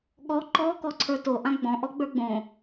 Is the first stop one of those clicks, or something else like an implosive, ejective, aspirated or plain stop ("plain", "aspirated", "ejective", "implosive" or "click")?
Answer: implosive